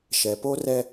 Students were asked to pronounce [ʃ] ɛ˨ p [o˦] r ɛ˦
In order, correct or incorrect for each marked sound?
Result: correct, correct

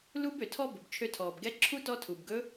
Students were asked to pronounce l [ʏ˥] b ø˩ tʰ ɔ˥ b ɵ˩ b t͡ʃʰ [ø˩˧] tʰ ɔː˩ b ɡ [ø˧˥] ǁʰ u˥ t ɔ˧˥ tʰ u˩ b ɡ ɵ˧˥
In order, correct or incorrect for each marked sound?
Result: incorrect, incorrect, incorrect

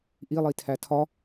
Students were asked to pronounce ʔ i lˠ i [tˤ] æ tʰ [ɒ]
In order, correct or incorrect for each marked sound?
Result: incorrect, correct

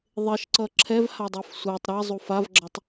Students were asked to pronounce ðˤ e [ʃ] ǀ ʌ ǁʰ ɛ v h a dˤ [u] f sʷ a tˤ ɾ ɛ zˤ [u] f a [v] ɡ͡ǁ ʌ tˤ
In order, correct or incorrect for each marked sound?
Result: correct, correct, correct, correct

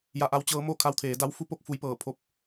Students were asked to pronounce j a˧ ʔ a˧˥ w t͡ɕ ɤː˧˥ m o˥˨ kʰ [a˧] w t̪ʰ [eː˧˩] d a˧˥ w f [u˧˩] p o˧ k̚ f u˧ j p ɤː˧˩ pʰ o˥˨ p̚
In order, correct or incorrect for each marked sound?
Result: correct, incorrect, incorrect

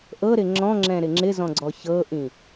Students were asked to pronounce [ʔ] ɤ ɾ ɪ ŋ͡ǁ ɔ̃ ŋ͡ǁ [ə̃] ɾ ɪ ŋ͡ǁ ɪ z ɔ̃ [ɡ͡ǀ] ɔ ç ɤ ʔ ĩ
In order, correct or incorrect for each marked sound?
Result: correct, incorrect, correct

